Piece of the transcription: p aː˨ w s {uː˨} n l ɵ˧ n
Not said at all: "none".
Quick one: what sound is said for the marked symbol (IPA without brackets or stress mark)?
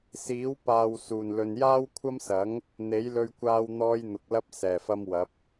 uː˨